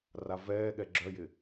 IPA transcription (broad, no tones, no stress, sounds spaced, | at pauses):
r a v ɛː ɠ ɛ ɡ͡ǁ œ j ɪ